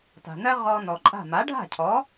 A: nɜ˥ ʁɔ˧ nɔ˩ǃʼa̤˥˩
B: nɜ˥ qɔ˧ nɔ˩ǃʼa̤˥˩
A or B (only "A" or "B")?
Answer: A